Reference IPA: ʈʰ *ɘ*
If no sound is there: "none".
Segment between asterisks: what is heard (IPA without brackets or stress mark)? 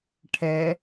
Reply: ɛ